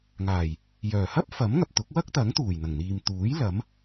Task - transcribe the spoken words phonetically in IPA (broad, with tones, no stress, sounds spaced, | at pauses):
ŋ aː˨˩ j | j œː˨˩ h ɐ˥ p̚ f ɐ˨˥ m ŋ ɐ˨ p̚ t̪ ʊ˨˥ k̚ w ɐ˥ k̚ t̪ ɐ˨˥ ŋ t̪ uː˨˩ j n̪ ɐ˨˩ ŋ n̪ iː˨ m t̪ uː˨˥ j l ɐ˨˥ m